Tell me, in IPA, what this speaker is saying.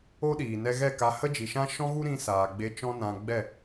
o˦ ɗ iː˨ n ɛ˧ ɣ ɛ˦˨ k a˧ h ə˦ d͡ʒ i˨ ʃ ã˦ ʃ ɔ̃˦ ɣ u˦ ɾ ĩ˧ s aː˨ ɡ͡b e˧ t͡ʃ ɔ̃˦ n ã˧ ɡ͡b ɛ˦˨

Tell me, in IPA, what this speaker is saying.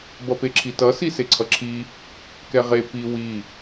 b ʌ p e ǁʰ i t ʌ s i s e ǀʰ ʌ ǁʰ i | k ɛ ʁ e p i w i

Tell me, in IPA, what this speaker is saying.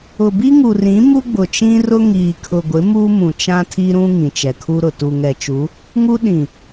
ʊ˨ b i˦ ŋ u˨ r ĩ˨˦ m u˦ ɡ͡b ʊ˨ t͡ʃ ĩ˦ r ʊ˦ ŋ iː˨ kʰ ʊ˨ ɡʷ ɪ˨˦ m u˦ m ũ˨ t͡ʃ ã˦ tʰ i˦ ɾ ũ˦ ŋ ĩ˨ t͡ʃ ɛ˨ kʰ u˦ ɾ ʊ˨ t u˨ ŋ ɛ˨ t͡ʃ u˨˦ | ŋ u˦ ɗ ĩ˨

